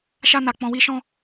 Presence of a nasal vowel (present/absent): present